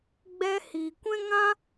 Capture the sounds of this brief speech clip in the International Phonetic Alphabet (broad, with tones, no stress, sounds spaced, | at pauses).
ɡ͡b ɛ˦ h iː˨ kʷ ɛ̃˦ ŋ ã˦